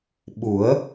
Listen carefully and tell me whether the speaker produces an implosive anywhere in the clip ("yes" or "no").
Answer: yes